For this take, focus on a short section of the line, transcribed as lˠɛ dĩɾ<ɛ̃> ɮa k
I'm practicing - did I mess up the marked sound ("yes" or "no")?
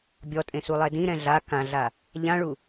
no